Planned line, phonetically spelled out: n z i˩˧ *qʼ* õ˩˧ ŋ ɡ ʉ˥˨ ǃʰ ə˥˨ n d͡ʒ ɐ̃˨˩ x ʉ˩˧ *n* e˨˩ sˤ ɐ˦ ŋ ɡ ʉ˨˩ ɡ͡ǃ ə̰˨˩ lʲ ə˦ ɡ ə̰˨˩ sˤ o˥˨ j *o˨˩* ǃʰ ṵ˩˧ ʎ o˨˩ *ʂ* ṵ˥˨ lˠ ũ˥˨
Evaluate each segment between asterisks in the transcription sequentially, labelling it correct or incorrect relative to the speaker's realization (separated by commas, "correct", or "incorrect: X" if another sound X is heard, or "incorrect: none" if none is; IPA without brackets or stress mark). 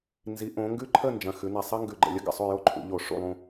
incorrect: ʔ, correct, incorrect: o˦, correct